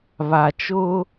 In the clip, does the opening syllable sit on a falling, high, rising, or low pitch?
low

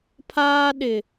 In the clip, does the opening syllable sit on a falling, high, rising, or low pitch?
high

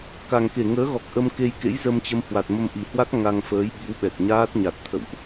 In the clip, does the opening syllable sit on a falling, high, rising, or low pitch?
low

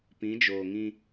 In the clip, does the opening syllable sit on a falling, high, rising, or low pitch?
rising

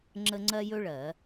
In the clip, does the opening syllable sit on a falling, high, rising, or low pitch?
high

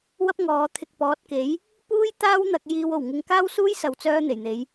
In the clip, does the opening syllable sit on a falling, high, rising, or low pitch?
high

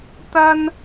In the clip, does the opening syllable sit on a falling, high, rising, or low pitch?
high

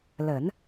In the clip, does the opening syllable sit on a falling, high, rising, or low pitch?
low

